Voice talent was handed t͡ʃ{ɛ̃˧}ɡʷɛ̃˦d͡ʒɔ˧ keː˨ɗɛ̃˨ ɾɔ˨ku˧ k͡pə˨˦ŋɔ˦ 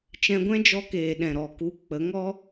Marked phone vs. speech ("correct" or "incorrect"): correct